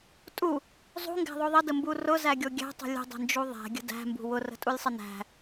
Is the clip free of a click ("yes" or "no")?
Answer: yes